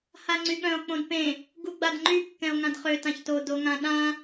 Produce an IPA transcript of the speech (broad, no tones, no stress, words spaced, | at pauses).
haŋ͡ǀyɠœ̃o̯ k͡põdpẽ | ɡuɡ͡badŋ͡ǃy kːɛ̃o̯ŋãdχø tãçto doŋãɗã